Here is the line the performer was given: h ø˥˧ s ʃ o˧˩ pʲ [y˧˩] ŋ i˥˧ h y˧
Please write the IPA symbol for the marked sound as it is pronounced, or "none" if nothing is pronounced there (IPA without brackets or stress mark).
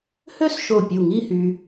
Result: u˧˩